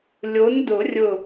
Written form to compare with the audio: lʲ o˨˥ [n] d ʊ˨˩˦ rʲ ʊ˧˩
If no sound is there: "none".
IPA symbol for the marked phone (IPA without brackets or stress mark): n